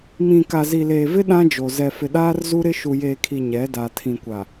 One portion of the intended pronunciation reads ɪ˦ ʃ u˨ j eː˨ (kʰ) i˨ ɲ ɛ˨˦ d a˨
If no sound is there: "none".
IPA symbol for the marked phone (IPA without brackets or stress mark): kʰ